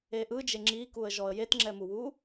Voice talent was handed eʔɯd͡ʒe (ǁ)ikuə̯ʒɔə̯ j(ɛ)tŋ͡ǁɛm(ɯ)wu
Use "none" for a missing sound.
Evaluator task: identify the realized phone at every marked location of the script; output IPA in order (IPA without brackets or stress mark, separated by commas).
ŋ͡ǁ, e, u